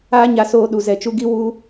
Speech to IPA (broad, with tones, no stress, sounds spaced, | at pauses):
aː˦ ɲ a˧ s oː˧ ɗ u˨ z ɛ˨ t͡ʃ u˧ ɡ i˦ w u˦